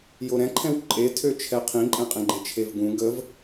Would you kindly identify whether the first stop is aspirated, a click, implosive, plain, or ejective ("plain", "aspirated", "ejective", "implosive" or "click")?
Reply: click